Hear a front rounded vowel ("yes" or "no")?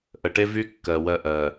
yes